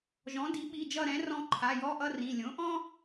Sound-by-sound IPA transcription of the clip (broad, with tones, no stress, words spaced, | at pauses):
ʒɔ̃˩˥ di˩˥ɓi˩˧˩d͡ʒʌ˦˨ ɾɛ̃˩˥ rɔ̃˦˨ǃʰa˩˧˩jɔ˧˥˧ʔʌ˥ rĩ˩˧˩ lʲõ˩˥ʔɔ̃˥